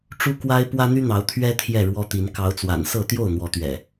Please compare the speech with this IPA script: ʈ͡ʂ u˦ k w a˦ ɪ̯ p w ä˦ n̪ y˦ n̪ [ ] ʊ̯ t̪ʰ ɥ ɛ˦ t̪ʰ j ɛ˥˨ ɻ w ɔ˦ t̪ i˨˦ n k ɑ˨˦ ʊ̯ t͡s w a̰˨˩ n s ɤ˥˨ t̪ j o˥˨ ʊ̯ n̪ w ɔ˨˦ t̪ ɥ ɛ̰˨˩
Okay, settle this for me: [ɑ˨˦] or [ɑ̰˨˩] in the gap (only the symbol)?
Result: ɑ˨˦